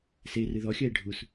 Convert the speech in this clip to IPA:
serɨ ðɔxʲɐe̯ ɖʱus

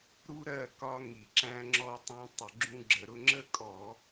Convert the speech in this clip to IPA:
ɾu˦ ɾɜ˥˨kɒ˦ ŋi˧˩˧ǁæ̃˦ŋ͡ǁɔ˦ tˤũ˦ tˤə˧˩˧ɡ͡ǁũ˦ɡ͡ǁə˧˩˧ɾʊ˦ ŋ͡ǁə˦kʼɔ˧˩˧

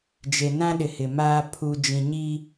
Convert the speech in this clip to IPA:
d͡ʒe˨nã˦ɗɪ˨ hɪ˨maː˦ pʰu˨d͡ʒĩ˨ɲi˦

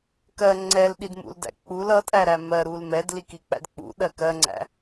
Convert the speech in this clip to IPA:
kɜ ŋ͡ǀɛlɗidmṵldæ̰ k͡pul ʌtʼæɾæ mɜɾul mɛdlikik͡pæ̰d k͡pṵɗɜ kɜŋ͡ǀæ̰

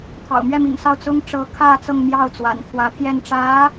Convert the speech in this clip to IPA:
t̪ʰɑ̰˨˩ʊ̯mɥɛ˥˩mḭ˨˩ŋsɑ˥˩ʊ̯ t͡sʊ˥ŋ ʈ͡ʂɤ˥ kʰä˥˧ t͡sɤ˥˧ŋmjɑ˥˩ʊ̯t͡swa̰˨˩n t̪ʰwä˧˥t̪ʰjɛ˥˩n ʈ͡ʂä˧˥

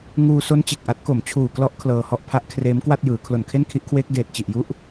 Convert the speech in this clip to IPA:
ŋuː˧so˦˥n t͡ɕe˨˩k̚ʔa˦˥t̚ko˨˩m t͡ɕʰuː˨˩klɔ˦˥ʔ kʰlɤː˧hɔ˦˥ʔpʰa˦˥ʔ kʰreː˦˥mkwa˥˩t̚jɯː˩˦ kʰlo˨˩nkʰe˥˩nkʰi˦˥ʔkʰweː˦˥k̚ deː˨˩t̚t͡ɕi˨˩ʔju˦˥ʔ

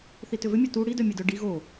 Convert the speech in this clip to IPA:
θitʏvʏ mʲœtu ɽidœmʲɛdœ ɖi ɣo

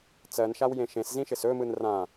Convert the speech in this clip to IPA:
t͡sɜnʃawjẽ ʃẽszĩʃɪs ɵmɯn rã

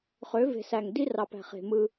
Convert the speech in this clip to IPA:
χø˨˦ve̤˨sæ˨ŋ di˦rɑ˨pæ̤˨ χe̤˨mɯ˦

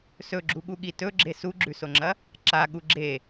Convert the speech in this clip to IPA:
sɵɡ͡ǁuɠuɠi tɵɡ͡ǁe suɡ͡ǁʉsoŋ͡ǁɐ | ǁaɠu ɡ͡ǁe

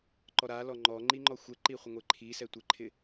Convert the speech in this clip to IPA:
ǃɔɾalɔ ŋ͡ǃɔ ŋ͡ǃiŋ͡ǃɔxʷɛǃi χʷɪŋʷeǃʰisɛ tʷɪǃʰɪ

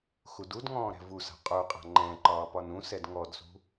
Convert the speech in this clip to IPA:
xududŋɔ̃ː ɾɛ̤vusa̤ qʼuqʼa̤ ŋ͡ǃɛ̃ǃɒː pɒnũsɛd ŋɔdsṳ

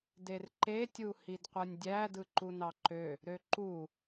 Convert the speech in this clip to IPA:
derǃe tʲuhidqʷɯnʲdʲæ dɯǃunɑǃø | ɾøǃu

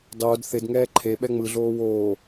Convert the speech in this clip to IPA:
dˤoːd θɪdŋɛː ǃʰe ɓɛŋ͡mɯɮoː woː

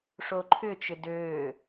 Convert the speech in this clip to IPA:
ʂoǃʰʏt͡ʃʏ døː

